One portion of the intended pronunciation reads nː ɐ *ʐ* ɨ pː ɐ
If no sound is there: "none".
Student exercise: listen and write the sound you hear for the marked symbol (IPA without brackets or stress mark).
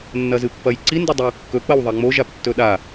z